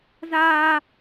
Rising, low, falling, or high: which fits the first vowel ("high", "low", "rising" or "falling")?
high